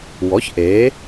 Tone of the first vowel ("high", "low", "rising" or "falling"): rising